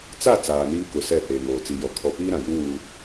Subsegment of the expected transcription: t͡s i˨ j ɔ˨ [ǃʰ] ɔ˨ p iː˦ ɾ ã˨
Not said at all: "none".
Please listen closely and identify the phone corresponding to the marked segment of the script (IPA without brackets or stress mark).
kʰ